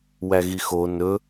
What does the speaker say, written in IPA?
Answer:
wæɣixo nɵ

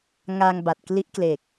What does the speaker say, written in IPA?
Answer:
ŋa˧ŋ ba˨˩t̚kli˦˥ʔkle˨˩k̚

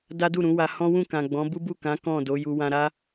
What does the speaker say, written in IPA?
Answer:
da˦du˦˨ɾũ˨˦wa˧ hɔ̃˦wũ˦˨kã˨ ɡ͡bɔ̃˨˦bu˦bu˦˨kã˨˦ kɔ̃˦˨do˨˦ju˧ wã˧ɾa˦

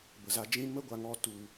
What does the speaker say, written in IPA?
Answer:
bə˨za˧d͡ʒĩ˦ mə˦ɡʷa˧ŋɔ˧ tu˧

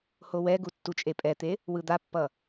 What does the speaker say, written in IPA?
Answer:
howɛɡu tːut͡ʃʼepʼɛt̪e | wɯd̪apːʌ

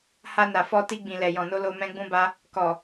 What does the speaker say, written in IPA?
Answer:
ha˧na˨fɔ˧ti˧ ɡ͡bĩ˨lɛ˨jɔ̃˨no˧ lo˧mɛ̃˦ɡ͡bũ˦ba˦ | kɔ˨

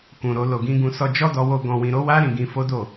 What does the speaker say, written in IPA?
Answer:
kũ˨ɾo˧ lo˨ɡĩ˧ɡũ˧sɔ˧ d͡ʒɔ˦dɔ˧wo˧ ɡɔ̃˨wĩ˨ɾo˨˦wa˦ ɾĩ˧ɡĩ˧fo˦ do˦˨

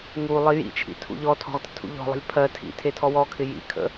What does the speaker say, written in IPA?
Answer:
ŋu lˠijḭt͡ʃʰḭ tʰṵʎɔtʰɔ̤ʁ tə̤tʰṵʎɔ̤lˠə̤lʲ pʰɜ tʰḭ tʰetʰɔwɔkʰɪ jḭkʰə̰

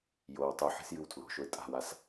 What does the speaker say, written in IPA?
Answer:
jow tˤu ħe̤sjɨwtʰlo̤ʃoɪ̯ tʼa̤was

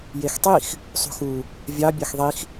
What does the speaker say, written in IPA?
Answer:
jextˤix | sˤṳxu | vʲɑ bʲɑxðˤix

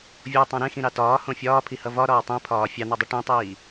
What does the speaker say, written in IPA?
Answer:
vʲotˤõ ɾẽxĩɾɑ tɒːhõ fʲɒːpʰihʌ vɒɾɒː tˤĩpʰɒː fʲɑn̪ɒdˤi ʈĩtˤiː

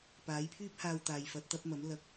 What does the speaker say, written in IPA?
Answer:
paː˨˥jpʰyː˥p̚haː˧w t̪aː˨jfɐ˨˥t̚t̪ɐ˨˥p̚mɐ˨˥m lɐ˧k̚

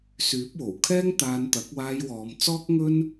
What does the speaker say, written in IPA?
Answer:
syː˨˥p̚wo˨˩w kʰɛː˥ŋ t̪aː˧nt̪ɐ˨˥k̚ waː˧jwɔː˨˧mt͡sɔː˥k̚ ŋɵ˥n

